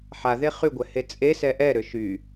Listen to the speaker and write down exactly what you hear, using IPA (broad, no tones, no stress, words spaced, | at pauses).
ħaðe χyɡʷɛ het͡sʼesɛ ʔɛɾø ʃy